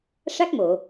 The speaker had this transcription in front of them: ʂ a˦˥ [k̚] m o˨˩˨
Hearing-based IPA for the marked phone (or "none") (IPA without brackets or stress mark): k̚